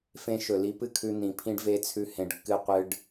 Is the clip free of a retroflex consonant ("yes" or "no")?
no